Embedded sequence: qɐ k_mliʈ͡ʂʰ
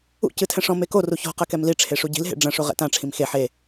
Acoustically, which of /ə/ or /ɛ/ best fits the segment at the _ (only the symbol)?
ɛ